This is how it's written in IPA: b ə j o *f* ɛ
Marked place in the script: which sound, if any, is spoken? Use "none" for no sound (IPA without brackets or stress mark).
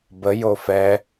f